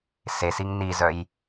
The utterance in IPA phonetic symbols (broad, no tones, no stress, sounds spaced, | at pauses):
s e s i ŋ n i z œ j